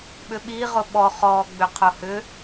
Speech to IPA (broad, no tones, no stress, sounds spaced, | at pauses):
ɓ ʏ ɓ i ʁ ʊ ɓ ɔ χ ɔː ɡ͡b ʏ qʰ ʊ h ʏ